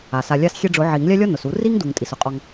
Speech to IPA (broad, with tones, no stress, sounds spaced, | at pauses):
a˩ s a˩ lʲ a˧ s xʲ e˧ ɖ͡ʐ ʊ˨˩˦ ʕ i˨˩˦ ŋ lʲ a˥ lʲ ɔ˥ n ʊ˩ s u˨˩˦ r i˥ ŋ d u˩ ŋ tʼ i˩ s ʊ˩ qʼ ɔ˧ ŋ